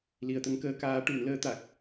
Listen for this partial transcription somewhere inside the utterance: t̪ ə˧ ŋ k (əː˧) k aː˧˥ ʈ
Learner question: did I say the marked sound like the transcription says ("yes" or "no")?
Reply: yes